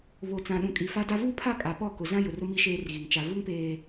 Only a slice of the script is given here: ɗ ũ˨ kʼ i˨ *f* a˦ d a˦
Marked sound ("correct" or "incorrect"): correct